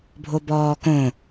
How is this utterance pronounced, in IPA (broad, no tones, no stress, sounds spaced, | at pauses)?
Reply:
bʱ o b ɔː k õ